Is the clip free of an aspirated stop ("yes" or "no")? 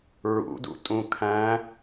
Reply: no